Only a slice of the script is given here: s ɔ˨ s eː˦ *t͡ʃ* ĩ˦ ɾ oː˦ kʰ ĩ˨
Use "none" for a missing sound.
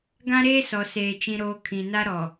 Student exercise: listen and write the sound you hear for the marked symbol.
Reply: t͡ʃ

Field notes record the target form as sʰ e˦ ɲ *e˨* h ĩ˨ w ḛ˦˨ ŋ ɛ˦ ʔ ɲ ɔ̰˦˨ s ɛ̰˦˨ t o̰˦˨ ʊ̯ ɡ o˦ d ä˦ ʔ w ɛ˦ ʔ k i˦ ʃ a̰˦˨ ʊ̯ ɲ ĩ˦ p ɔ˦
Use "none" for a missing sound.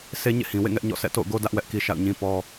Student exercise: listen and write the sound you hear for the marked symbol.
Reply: ḛ˦˨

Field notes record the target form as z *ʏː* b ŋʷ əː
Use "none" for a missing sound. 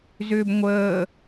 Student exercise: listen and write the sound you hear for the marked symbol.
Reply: ʏː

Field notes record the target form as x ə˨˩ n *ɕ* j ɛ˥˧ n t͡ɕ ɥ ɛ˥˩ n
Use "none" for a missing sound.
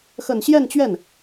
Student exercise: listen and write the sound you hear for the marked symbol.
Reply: ɕ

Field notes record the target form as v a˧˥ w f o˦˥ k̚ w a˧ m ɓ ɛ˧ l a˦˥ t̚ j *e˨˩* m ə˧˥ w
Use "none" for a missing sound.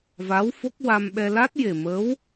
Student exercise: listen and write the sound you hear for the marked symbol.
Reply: e˨˩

